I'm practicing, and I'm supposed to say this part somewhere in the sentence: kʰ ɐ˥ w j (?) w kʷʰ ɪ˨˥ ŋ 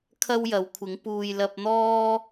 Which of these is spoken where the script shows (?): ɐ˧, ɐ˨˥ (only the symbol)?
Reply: ɐ˨˥